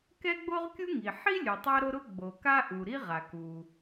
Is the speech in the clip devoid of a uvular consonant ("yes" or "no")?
no